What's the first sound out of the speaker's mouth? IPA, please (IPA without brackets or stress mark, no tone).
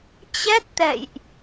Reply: t͡ɕ